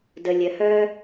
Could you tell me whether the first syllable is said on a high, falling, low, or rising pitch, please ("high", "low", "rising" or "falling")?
low